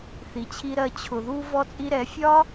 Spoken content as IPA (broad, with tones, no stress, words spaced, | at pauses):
θi˨t͡ɕʰi˧ ɾɜ˧ t͡ɕʰʊ˨ ðu˧vɔ˧t͡sʼi˧ɾɛ˨˦ fʲɒ˦